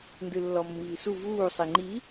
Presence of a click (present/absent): present